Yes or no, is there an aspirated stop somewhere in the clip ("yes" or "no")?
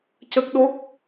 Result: no